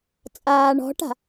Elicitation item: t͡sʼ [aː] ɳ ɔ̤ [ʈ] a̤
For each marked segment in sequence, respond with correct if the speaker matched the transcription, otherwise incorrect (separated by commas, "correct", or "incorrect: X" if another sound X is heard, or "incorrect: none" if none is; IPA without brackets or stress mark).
correct, correct